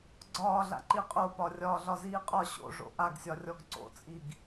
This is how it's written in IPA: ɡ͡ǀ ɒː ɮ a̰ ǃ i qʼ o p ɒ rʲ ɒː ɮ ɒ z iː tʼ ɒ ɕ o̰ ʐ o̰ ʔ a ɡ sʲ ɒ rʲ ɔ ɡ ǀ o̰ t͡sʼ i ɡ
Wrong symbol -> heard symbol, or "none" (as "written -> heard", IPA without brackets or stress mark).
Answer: tʼ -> qʼ